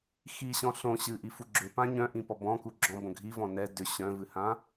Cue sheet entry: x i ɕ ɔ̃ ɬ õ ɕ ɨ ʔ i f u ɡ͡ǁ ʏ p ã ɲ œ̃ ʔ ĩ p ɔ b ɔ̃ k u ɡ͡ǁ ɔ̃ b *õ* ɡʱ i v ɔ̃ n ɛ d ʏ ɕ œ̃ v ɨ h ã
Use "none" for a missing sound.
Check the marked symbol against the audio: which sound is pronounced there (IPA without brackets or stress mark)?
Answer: õ